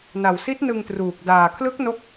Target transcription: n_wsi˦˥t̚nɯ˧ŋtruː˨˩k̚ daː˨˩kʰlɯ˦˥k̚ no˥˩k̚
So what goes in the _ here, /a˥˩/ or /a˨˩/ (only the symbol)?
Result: a˨˩